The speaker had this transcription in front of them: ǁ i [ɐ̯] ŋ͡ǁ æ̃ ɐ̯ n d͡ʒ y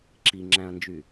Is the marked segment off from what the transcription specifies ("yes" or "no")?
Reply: yes